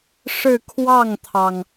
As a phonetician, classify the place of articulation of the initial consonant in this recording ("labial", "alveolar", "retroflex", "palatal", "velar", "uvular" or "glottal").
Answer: retroflex